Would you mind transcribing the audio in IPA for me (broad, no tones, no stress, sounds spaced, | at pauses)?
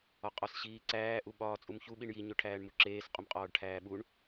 ɒ qʼ ɒ s ɕ iː ǀ æː ʔ u ɓ ɒː t͡sʼ u m ç u ɓ i ɳ j i ɲ o ʈʰ æː ɳ m u ǁ eː s qʼ u m qʼ ɒː ɖ ʈʰ æː ɓ u ɳ